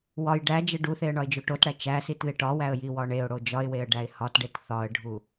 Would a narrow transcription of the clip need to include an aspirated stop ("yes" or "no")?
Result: no